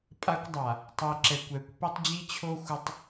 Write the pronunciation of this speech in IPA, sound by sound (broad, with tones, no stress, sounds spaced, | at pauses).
pʼ a˦ kʷ dˤ a˨ | tˤ i˨ ǁ ɛ˨ kʷ ɛ˨˦ kʷ p i˦ tˤ d͡ʑ i˦ t͡ɕʰ o˦ xʷ ɘ˦ tˤ